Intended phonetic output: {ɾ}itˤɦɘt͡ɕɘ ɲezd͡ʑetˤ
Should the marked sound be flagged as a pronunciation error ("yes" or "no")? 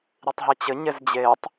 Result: no